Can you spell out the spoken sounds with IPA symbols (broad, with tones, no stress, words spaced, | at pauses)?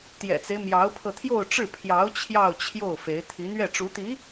t̪jɛ̰˨˩t͡se˦ɪ̯ mjɑ˧˥ʊ̯pʰɤ˧t̪ʰjo˥˧ʊ̯ʈ͡ʂɻ̩˥˩ pʰjɑ˧˥ʊ̯ t͡ɕʰjɑ˥˧ʊ̯t͡ɕʰjo˥˩ʊ̯fe˧˥ɪ̯ t̪ʰi˧˥n̪ɥɛ˥˩ ʈ͡ʂu˧˥t̪i˧˥